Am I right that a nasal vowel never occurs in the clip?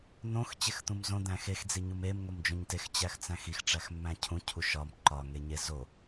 no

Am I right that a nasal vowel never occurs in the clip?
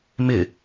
yes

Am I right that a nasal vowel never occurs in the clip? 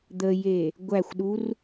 yes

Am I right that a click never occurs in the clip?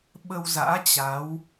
yes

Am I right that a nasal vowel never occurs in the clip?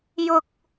yes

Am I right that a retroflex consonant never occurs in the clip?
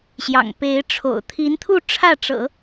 no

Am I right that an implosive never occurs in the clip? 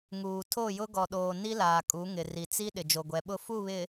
no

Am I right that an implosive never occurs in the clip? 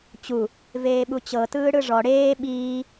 no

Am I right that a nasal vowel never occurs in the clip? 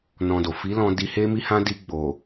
no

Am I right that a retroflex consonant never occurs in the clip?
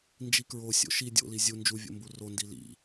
yes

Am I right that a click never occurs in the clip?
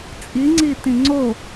no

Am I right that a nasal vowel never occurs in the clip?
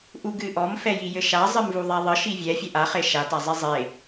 yes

